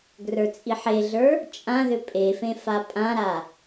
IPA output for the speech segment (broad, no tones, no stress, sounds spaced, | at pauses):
ɡ r ə˞ t͡sʼ i ħ e ɮ ə˞ | t͡ʃʼ ã ð ʏ pʼ e f ẽ f a pʼ ã ɾ a